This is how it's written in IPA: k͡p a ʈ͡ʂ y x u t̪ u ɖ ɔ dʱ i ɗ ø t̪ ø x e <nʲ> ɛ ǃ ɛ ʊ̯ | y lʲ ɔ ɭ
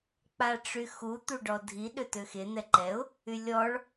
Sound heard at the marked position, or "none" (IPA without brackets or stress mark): n̪